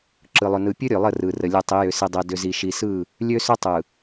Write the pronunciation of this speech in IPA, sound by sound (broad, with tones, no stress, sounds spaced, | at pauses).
ǁ ɯ˨ lˠ ʏ˨ n ɯ˨ pʲ ɵ˦ ɾʲ ø˨ lˠ ə˦˨ r ɯ˨ r ə˨ lʲ ɯ˨ tˤ i˨˦ j ʏ˨ s i˨ dˤ ɛ˨ d ʏ˨ z i˨ ʃ i˨ s ɯ˦˨ | lʲ ø˦ s ʏ˦ tˤ ɯ˨